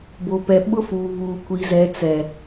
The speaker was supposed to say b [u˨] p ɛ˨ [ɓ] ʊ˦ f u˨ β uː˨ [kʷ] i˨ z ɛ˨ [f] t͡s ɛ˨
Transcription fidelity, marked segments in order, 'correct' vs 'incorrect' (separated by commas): incorrect, correct, correct, incorrect